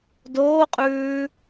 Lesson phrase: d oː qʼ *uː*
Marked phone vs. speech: incorrect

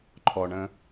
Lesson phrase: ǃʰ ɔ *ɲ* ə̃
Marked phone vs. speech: incorrect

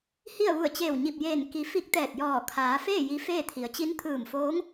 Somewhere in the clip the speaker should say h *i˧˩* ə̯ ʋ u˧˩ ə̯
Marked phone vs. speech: incorrect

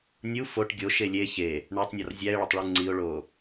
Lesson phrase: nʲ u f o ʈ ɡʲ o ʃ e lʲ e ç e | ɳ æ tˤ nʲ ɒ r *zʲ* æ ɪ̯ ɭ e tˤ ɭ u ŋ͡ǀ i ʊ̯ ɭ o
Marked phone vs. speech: correct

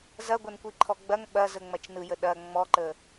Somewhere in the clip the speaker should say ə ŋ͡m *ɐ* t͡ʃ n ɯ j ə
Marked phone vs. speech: correct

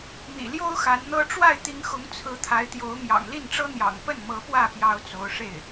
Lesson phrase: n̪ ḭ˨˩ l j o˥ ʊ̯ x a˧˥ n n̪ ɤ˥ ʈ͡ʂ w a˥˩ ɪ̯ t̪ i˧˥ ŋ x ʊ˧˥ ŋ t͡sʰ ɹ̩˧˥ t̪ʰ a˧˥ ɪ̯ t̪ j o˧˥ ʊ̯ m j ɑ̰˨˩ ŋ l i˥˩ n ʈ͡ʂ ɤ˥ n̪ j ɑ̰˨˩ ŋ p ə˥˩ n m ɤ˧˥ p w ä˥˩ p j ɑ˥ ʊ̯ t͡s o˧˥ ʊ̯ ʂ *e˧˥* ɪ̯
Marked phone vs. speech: incorrect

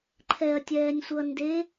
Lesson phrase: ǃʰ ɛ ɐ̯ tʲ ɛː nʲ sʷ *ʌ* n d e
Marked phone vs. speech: correct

